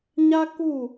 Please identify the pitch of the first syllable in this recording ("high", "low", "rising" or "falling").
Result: high